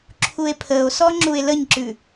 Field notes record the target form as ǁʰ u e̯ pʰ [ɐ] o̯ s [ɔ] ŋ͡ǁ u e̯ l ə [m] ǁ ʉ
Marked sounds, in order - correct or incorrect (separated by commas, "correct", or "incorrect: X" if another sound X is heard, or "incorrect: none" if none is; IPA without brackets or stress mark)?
incorrect: ə, correct, incorrect: ɲ